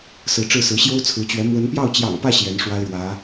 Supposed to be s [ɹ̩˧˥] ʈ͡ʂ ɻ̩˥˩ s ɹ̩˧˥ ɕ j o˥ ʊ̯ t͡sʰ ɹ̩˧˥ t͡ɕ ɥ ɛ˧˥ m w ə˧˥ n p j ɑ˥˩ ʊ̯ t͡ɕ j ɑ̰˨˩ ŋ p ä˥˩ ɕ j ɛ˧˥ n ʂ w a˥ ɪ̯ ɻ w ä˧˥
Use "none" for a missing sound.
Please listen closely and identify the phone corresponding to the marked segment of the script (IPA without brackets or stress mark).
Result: ɹ̩˧˥